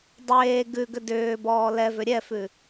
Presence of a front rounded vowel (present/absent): present